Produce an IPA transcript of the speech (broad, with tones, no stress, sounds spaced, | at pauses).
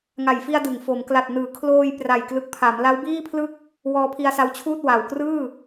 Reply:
ŋ a˨˩ j f i˧ a̯ d ɯ˩˦ ŋ f o˩˦ m k l a˨˩ t̚ n ɯː˩˦ kʰ l oː˧ j p r a˨˩ j k l ɯ˨˩ k̚ pʰ a˩˦ m l a˦˥ w b iː˥˩ pʰ l ɯ˥˩ k̚ | w ɔː˧ pʰ i˧ a̯ s a˧ w t͡ɕʰ uː˥˩ t̚ w a˨˩ w k r ɯː˥˩